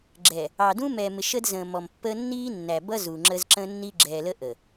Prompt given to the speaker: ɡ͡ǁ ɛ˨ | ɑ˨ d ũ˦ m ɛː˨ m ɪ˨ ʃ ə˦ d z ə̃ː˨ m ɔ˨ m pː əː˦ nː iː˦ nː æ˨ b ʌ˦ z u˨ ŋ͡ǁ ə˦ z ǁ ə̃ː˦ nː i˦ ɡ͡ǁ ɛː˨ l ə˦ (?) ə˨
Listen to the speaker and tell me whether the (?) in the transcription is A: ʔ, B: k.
A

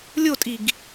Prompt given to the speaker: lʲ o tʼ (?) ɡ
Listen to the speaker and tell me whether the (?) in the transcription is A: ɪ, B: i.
B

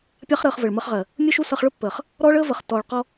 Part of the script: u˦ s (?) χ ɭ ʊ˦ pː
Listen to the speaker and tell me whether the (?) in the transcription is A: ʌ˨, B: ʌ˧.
B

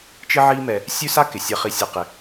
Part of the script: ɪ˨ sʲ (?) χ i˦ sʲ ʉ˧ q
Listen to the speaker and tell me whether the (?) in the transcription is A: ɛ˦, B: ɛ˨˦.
A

